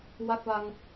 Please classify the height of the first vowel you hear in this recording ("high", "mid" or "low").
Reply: low